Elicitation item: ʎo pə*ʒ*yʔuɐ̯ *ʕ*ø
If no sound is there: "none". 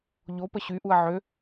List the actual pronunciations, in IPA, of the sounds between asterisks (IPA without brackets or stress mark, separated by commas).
ɕ, ʕ